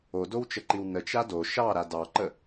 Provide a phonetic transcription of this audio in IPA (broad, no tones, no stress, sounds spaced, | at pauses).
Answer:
o d o w t͡ʃ ə ǃ i w n ə t͡ʃ a d o ʃ ɑ ɾ a d ɑ ǃ ə